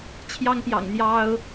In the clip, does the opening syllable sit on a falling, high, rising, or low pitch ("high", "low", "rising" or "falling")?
high